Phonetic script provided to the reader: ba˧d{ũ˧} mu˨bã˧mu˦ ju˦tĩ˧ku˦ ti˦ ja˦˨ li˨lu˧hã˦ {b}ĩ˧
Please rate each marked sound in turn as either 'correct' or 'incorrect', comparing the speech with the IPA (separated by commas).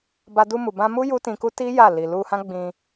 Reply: incorrect, incorrect